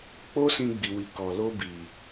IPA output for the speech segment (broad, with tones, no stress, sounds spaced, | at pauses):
k͡p o˦ s ĩ˧ ɡ͡b i˨ w i˨ k ɔ˨ l o˧ b i˨